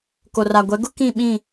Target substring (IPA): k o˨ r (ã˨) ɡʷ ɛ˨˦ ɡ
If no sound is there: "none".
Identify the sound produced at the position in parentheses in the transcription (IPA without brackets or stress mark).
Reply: a˨